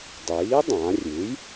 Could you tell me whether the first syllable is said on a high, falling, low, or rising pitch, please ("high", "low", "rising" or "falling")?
rising